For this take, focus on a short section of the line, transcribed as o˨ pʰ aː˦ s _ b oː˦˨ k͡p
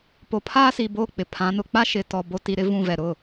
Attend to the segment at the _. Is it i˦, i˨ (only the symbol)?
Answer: i˨